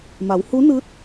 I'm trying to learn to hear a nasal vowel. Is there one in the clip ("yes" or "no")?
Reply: no